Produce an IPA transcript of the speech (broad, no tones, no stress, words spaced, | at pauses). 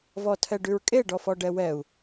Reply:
vɔtʰɛɖʉɹkʼe ɖɔfɔɖɛwɛu̯